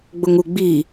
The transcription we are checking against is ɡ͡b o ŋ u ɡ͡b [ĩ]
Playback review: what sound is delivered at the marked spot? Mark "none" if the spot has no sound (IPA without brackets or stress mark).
i